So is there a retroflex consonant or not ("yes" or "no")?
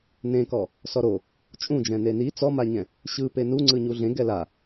no